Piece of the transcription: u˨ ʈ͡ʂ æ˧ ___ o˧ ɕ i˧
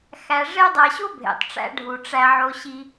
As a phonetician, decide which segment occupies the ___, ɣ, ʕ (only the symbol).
ʕ